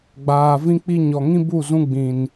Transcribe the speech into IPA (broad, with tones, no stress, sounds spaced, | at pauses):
ɡ͡b aː˨ v ĩ˦ k͡p i˦ ɲ ɔ˨ ŋ ĩ˦ b u˦˨ z ũ˧ ɡ͡b ĩ˨ n